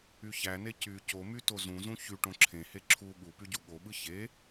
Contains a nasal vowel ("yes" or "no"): yes